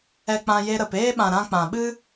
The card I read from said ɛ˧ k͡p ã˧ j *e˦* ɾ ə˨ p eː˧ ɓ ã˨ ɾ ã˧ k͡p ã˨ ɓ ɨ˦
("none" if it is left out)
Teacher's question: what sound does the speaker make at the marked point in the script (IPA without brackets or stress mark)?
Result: e˧